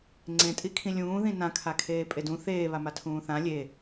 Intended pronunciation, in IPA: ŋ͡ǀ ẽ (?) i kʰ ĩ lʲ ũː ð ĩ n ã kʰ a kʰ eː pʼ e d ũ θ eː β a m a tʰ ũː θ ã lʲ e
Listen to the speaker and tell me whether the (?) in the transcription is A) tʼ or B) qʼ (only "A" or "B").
A